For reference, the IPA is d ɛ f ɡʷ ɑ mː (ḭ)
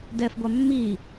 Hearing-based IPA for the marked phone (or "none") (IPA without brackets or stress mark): i